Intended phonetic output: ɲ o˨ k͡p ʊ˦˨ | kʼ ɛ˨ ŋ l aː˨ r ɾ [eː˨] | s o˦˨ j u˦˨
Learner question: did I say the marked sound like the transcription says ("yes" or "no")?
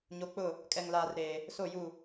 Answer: yes